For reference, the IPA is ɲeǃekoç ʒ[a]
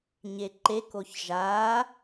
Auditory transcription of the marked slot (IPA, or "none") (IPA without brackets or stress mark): a